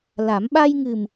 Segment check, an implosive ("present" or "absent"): present